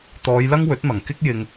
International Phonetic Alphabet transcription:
t̪ɔː˨˧jlɐ˥ŋ wɵ˨˥t̚mɐ˨˩ŋ kɪ˥k̚ jɪ˧ŋ

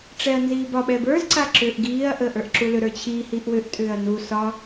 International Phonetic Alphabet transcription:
ʈ͡ʂɛɐ̯nziːbɒ ɓɛbə˞z ǀaǁʏːʔɡiːɐ̯ ʔəːʔə˞ʔǁulʏ ɾə˞t͡ɕʰi hiʔwʏʔ tʼʏːɐ̯nu sɒ

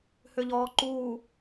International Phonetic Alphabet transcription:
hʏʎɔːǃuː

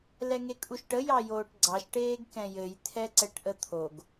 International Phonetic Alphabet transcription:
lɛŋekʼuʃʈə jɑjoːʈɡ͡ǀɑʃ ʈeːɡkɛ̃jɘj t̪ʰɛǀɛʈʔət̪ʰoɡ

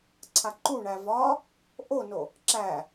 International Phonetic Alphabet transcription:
ǀʰaǃuɳæ vɒ | ʔono | ǁæ

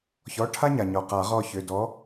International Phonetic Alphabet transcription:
çɔ˩˧˩ ʈʰa˦ɲa˩ɲɔ˩ qa˨˩˦ʁɔ˦˨çʏ˩˧˩ dɔ˨˥

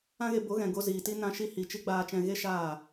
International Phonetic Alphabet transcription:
ã˦ɣe˧ bo˨˦ɣɛ̃˨ ɡo˧ziː˨ti˦ nã˧ʃi˧ hi˨t͡ʃi˧ ɡ͡baː˧t͡ʃɛ̃˧ ɣe˦ʃaː˦˨

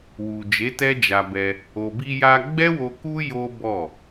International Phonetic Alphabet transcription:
wu˨ d͡ʒe˨˦tɛ˦d͡ʒa˧ bɛ˧ | o˨bi˧ja˧ ɡ͡bɛ˦wo˧ ku˦ jo˦ bɔ˦˨

